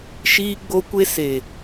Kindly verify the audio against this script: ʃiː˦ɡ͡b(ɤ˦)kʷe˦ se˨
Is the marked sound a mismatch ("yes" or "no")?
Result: yes